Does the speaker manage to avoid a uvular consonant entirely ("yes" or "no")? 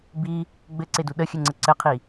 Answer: no